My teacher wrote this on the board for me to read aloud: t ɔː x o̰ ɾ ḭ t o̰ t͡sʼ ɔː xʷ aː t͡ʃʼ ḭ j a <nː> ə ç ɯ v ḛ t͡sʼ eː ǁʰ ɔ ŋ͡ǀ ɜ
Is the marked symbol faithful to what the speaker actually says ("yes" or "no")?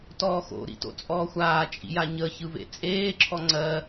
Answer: no